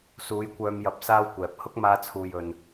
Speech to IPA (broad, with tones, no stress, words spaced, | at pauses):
suː˨˧jkʷœː˧mjɐ˨˥p̚ saː˥wkʷɛː˨p̚ hʊ˥k̚maː˧t͡sʰuː˨j ɵ˧n